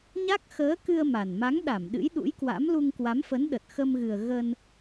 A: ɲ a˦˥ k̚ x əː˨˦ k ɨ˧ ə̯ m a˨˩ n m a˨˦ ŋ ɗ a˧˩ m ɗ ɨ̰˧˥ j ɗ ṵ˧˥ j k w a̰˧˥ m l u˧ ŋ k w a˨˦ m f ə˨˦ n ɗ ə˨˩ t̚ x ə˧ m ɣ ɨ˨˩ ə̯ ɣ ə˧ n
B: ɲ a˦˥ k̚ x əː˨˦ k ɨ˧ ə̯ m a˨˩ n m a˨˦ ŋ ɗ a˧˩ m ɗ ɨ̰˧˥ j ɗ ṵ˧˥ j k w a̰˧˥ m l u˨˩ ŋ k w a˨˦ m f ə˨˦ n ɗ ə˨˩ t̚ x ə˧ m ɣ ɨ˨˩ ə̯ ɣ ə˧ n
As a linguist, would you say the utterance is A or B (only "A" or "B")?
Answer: A